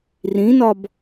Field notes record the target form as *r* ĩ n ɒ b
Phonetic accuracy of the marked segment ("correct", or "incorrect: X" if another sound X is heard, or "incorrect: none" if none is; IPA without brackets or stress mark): correct